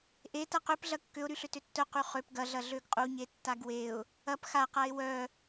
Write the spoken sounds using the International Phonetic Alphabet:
ʔ e t ɐ q ø p ɮ ɐ kː ʏ ʊ̯ ɾ y ɬ ʏ t ʏ tː œ q y χ ø p ɡ ɐ ɮ ɐ ɮ ø ɡ qʼ u ɲ e tː a ɡ w e ʊ̯ | ɐ p x a q a ɪ̯ w œ

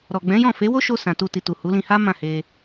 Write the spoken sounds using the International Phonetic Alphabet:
ɾ ɔ˨ ɡ͡b ɛ̃˨˦ j ɔ̃˦˨ f e˨˦ w o˦ ʃ o˧ s ã˨ t u˧ t i˨ t u˨ h u˨˦ l ĩ˧ h a˦ m ã˦˨ h e˧

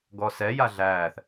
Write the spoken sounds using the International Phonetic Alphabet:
ɡ ɔ s ɛ j a ɮ æː θ

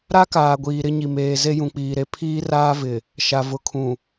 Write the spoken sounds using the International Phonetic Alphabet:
ɾ a˦ k aː˨ ɡʷ iː˨ ɾ ɪ˦ ɲ i˨ m eː˨ z e˦ j ũ˨ k͡p iː˨ ɾ e˦ pʰ iː˦ r aː˦ v ɪ˨ | ʃ a˨ v ʊ˨ kʰ ũ˨

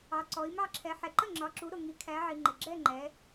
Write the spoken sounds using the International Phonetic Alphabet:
ɑ˨ ǀ ɔ˨˦ i̯ m ɑ˥˧ ǁʰ ɛ˨˦ ħ ɛ˨ ǃ ə˥˩ ŋ͡ǁ ɒ˨˦ ǁ u˨˦ ɾ ʊ˨ ŋ i˨˦ kʰ æ˨˦ ʕ i˨ ŋ͡ǃ ɪ˨ ɡ͡ǁ ɛ˥˧ ŋ͡ǃ ɛ˨˦

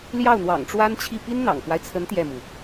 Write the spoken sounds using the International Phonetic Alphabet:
l j ɑ˥˩ ʊ̯ n̪ w ɑ̰˨˩ ŋ ʈ͡ʂ w a˥ n t͡ɕʰ i˥˩ p i˥ n n̪ ɑ̰˨˩ ŋ k w a˦ ɪ̯ t͡sʰ ə˧˥ n t̪ j ɛ˥˩ m u˩

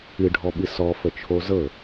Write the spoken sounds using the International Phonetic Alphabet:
ɨ ɖʱ ɔ ɓ ɨ s ɔ f ə t͡ʃʰ o z ɤ

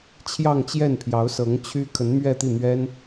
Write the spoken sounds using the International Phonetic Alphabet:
t͡ɕʰ j ɑ˥˧ ŋ t͡ɕ j ɛ˥˩ n pʰ j ɑ˧˥ ʊ̯ s ɤ˧˥ ŋ t͡ɕʰ y˥ kʰ ə˧˥ n m ɥ ɛ˥˧ t̪ i˥˩ n̪ ɥ ɛ˥ n

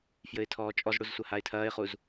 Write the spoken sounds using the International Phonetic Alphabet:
f j ɘ ɪ̯ tʰ ɔː t͡ʃʼ ɔ z ɽ u z sʷ ɐ h a ɪ̯ tʰ ɐː ɪ̯ χ u z

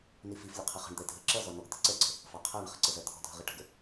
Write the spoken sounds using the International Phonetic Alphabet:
n i f i f lʲ ə qʰ ɪ χ ə̤ ɳ d̪ ɛ dʱ ə ǁ ʌ z ɔ n ɔ ɡ t̪ ɪ ǀ ɛ ǀ ə̤ | f ɑ qʰ æ ɳ χ ə̤ ǀ ə z ɜ t̪ʰ ɔ̤ dʱ ə̤ ʁ i ʈ ə̤ ɡ ə

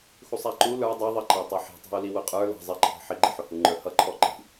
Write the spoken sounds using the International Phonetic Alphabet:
x u sˤ æ ǃ u l ə˞ dˤ i ðˤ ə ǃ ɑ tˤ ɛ ħ i̤ tˤ æ̤ u̯ l i w ʊ qʼ ə˞ l ɑ̤ zˤ ɪ ǃʰ ɑ̤ ħ ɪ ɡ͡ǃ ɪ ħ ʊ h u ŋ͡ǃ ə˞ h ʌ ǃʰ ɔ ǃ i̤

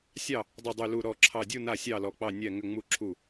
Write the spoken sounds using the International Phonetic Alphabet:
sʲ ɑ˥˨ | dˤ ɨ˧˩ dˤ y˧˩ l u˧˩ ɾ ɔ˧˩ ǁʰ ɑ˧˩ dʲ u˥˨ n a˥˨ sʲ ɑ˥˨ l ɔ˧˩ k͡p ɑ˥˨ nʲ ɛ˥˨ ŋ ʏ˥˨ ŋ͡m u˥˨ ǁʰ u˥˨

